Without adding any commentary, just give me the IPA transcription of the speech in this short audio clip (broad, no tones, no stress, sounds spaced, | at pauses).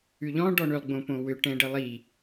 ʉ ʎ ɔ̃ ɖ ɔ ɳ ʏ lˠ ɡ͡b õ p õ w ʏ ʈ ɛ̃ ɖ ɛ lˠ i